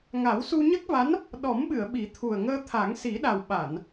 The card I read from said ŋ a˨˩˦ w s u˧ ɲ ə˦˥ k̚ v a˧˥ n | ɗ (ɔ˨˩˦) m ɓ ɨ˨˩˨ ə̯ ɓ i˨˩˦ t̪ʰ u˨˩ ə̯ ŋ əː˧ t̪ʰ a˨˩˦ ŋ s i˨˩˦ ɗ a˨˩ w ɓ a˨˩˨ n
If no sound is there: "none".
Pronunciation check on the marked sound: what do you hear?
ɔ˨˩˦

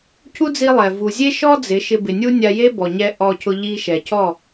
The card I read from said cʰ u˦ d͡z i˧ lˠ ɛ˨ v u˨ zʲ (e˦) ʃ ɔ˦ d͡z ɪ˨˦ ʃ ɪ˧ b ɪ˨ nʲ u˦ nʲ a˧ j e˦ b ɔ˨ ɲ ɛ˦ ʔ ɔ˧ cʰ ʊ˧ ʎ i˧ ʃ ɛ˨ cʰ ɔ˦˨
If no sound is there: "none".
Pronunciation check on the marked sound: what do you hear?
e˦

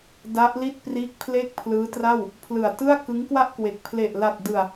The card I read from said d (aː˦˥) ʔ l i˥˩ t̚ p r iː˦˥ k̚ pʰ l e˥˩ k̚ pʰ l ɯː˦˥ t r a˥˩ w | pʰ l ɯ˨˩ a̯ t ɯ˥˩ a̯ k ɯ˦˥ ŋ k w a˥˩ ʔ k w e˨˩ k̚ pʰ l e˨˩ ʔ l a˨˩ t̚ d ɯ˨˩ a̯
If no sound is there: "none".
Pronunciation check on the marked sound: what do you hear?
a˦˥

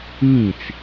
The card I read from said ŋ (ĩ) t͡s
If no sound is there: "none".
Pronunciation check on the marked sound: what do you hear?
ĩ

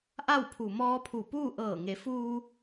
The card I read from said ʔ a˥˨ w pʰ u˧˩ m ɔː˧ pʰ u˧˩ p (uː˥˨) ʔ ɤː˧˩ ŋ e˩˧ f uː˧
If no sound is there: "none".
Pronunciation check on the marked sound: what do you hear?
uː˥˨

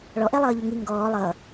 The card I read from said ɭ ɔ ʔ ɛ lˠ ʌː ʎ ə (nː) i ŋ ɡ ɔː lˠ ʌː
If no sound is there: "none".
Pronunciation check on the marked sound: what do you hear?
ŋ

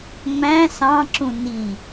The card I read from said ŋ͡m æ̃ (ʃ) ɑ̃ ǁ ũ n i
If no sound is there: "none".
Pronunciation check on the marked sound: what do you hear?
s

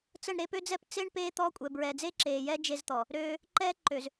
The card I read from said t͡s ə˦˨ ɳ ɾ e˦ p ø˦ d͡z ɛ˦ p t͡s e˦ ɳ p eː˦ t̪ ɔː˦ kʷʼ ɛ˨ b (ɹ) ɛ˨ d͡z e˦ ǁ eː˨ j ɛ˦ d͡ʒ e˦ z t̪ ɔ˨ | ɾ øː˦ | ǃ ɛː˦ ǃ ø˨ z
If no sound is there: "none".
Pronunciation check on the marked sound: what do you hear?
ɹ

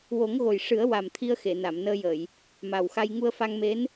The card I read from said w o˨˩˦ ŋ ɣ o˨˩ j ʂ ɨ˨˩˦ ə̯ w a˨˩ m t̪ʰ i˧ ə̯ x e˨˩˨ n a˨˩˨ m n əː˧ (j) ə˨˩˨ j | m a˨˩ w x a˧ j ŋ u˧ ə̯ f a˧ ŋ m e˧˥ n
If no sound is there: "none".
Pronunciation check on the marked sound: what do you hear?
j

